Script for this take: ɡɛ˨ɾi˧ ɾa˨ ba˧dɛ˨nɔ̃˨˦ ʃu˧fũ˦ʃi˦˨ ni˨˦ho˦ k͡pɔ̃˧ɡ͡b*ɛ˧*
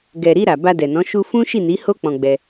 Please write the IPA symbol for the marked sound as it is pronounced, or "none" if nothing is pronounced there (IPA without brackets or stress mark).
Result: ɛ˧